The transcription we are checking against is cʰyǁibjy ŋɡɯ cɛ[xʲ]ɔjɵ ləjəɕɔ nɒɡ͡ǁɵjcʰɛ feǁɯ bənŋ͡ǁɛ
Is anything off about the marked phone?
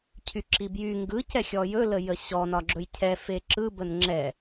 no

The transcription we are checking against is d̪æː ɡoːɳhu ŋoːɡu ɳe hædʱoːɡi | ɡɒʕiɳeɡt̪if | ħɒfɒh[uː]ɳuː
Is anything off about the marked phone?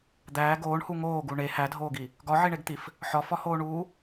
yes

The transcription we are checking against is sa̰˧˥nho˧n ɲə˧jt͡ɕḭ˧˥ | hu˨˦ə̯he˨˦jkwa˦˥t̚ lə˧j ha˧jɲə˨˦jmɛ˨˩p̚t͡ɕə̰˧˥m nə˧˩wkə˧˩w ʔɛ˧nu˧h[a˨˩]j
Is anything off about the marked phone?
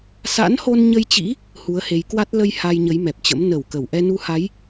yes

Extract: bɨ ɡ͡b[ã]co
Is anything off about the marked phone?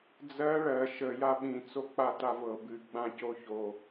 no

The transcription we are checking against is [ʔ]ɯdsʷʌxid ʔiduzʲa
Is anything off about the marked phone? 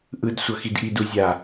no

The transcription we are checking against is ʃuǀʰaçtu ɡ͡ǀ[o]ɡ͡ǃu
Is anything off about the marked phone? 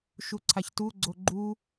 no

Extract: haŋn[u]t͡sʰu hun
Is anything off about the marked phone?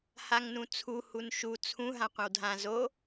yes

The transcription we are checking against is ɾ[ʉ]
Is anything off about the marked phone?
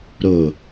yes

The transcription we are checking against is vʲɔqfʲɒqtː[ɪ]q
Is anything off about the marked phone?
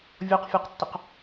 no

